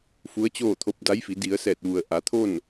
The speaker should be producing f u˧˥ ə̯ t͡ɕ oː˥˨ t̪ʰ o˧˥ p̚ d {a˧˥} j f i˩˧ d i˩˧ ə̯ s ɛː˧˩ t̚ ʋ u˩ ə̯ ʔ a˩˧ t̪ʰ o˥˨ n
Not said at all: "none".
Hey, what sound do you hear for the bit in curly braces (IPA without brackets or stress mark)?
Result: a˧˥